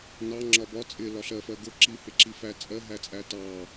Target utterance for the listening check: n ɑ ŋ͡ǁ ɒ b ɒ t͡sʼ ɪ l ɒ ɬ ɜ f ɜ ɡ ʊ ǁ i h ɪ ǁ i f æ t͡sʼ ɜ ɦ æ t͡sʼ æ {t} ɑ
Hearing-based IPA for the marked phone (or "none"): t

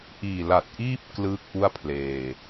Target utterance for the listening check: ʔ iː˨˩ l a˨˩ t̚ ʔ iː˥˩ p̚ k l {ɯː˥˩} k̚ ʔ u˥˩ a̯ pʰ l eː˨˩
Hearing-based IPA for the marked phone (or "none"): ɯː˥˩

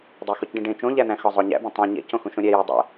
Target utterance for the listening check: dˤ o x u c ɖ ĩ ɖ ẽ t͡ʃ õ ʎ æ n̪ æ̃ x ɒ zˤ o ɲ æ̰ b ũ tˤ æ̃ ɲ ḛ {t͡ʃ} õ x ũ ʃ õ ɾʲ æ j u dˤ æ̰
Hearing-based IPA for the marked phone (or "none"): c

